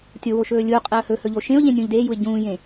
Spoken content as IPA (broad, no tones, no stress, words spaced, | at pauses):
tʲo woʃɵːlʲuqʼɛə̯ hɵ hɵʎoʃẽʊ̯ʎẽ nʲũːʎdeːjuɪ̯ ɟũːjẽ